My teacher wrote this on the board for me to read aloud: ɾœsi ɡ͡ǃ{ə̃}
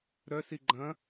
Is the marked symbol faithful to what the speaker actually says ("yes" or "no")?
no